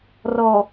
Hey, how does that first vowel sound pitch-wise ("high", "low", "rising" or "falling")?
low